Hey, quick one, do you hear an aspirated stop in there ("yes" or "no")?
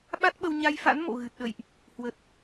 no